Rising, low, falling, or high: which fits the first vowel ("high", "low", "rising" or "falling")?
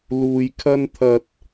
low